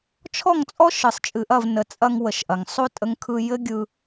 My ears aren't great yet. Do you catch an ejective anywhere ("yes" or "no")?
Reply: yes